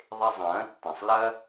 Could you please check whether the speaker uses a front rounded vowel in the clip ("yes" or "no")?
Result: no